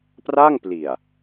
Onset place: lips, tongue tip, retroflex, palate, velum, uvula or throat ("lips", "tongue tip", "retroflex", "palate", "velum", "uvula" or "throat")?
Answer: lips